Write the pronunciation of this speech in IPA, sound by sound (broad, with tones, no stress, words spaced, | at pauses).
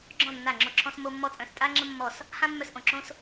ɡ͡ǁɔ̃˥˩ nːa˥˩ŋ͡ǁo˥˩ǁʰɔ̃˥smo˥ mːɔ˥t͡sʼœ̃˥˩s tʼa˥ŋ͡ǁə̃˥mːɔ˥˩s | hã˥mːœ˥˩s ʔõ˥˩ǁõ˥s